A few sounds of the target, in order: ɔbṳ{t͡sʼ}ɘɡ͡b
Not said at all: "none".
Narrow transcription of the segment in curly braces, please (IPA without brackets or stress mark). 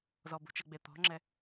t͡ʃ